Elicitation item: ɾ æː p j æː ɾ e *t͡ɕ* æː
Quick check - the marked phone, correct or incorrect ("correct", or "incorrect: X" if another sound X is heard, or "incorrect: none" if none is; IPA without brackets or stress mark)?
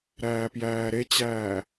correct